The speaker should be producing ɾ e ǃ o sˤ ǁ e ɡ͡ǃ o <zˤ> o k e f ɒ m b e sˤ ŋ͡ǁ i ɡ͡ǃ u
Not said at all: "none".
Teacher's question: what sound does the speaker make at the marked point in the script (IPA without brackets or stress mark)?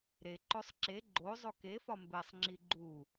zˤ